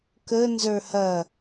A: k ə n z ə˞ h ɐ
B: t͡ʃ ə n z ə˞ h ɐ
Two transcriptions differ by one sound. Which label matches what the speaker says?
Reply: A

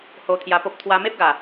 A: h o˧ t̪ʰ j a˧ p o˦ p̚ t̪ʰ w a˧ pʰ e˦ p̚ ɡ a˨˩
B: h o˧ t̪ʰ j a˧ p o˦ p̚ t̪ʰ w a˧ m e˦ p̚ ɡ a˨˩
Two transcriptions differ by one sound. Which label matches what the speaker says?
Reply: B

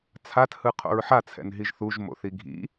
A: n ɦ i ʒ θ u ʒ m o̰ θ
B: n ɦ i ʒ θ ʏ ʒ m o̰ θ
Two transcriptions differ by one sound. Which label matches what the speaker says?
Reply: A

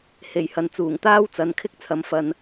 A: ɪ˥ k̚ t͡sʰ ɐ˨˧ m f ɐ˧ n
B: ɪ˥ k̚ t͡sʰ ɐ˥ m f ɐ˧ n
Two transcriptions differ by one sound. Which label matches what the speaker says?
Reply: A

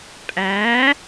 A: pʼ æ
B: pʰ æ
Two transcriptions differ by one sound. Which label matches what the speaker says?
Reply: A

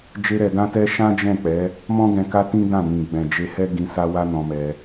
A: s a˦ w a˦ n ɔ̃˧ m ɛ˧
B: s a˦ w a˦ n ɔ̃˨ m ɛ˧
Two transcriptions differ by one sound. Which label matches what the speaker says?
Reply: A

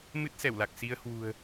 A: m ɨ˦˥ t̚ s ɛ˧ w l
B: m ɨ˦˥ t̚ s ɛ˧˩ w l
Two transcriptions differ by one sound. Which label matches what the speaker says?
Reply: B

